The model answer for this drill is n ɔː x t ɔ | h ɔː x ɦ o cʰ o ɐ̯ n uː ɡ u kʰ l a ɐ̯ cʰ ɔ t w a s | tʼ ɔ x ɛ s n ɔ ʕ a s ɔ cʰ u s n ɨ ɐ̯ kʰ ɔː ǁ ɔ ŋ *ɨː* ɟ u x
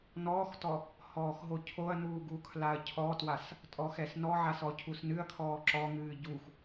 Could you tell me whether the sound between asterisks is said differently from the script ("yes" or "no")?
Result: no